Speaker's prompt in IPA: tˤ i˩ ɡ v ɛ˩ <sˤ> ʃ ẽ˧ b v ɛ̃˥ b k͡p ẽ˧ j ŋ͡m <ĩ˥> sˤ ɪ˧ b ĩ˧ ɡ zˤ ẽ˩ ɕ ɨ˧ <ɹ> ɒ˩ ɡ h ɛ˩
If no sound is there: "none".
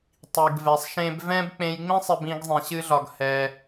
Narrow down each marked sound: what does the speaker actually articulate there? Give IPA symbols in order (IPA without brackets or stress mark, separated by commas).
sˤ, ĩ˥, ɮ